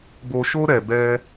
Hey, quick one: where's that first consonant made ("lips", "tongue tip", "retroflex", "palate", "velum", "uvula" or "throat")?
lips